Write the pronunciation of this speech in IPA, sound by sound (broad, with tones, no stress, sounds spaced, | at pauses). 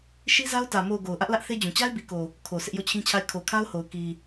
ʃ i˦ z a˦ ʊ̯ t ä˨ m o˨ ʊ̯ ɡ o˨ ʊ̯ ʔ ä˦ ʔ l ä˦ ʔ θ e˦ d͡ʑ ũ˨ t͡ɕ a˦ ɪ̯ b i˨ k o˨ | kʰ o˨ sʰ ɪ˦ ʔ j o˦˨ t͡ɕʰ ĩ˦ t͡ɕʰ a˦˨ ɪ̯ kʰ o˨ kʰ a˦ ʊ̯ h o˨ ʊ̯ k i˨